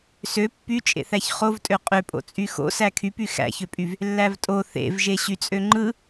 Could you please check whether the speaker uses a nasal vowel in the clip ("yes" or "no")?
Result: no